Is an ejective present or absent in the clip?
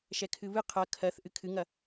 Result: absent